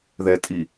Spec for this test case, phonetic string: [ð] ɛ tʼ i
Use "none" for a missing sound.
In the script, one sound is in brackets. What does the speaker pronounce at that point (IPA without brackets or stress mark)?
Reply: ð